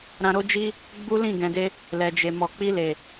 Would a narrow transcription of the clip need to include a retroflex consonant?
no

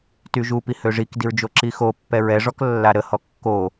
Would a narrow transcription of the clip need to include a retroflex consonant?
yes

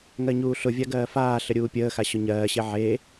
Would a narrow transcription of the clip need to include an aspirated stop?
no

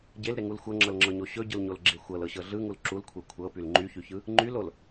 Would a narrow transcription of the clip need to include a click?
yes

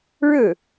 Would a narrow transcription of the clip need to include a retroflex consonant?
yes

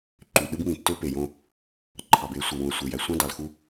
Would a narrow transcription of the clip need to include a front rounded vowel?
yes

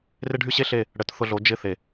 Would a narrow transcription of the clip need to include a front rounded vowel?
yes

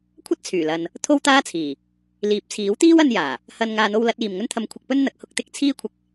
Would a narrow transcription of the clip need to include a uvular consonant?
no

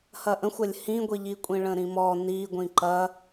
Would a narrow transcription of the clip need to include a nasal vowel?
yes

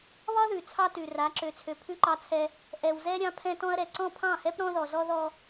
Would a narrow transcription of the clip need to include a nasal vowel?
yes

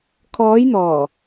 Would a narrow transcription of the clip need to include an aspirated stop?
yes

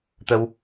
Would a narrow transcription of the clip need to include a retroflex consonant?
no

